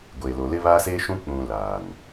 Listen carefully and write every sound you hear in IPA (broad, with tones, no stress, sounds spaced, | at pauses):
ɡʷ eː˨ l o˨ l ɪ˦ β aː˦ s eː˦ ʃ ũ˦ k͡p ũ˨ l aː˨ n